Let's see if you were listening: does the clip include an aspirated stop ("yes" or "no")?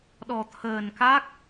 yes